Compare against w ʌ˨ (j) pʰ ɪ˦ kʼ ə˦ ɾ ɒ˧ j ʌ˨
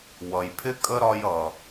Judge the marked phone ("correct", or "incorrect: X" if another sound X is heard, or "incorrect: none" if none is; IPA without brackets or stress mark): correct